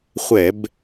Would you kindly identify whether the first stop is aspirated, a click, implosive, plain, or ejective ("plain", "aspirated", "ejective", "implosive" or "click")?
plain